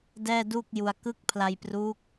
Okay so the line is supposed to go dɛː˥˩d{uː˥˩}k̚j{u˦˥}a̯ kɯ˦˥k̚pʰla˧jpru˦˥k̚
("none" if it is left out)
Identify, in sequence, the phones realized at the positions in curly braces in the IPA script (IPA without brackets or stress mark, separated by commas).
uː˥˩, u˧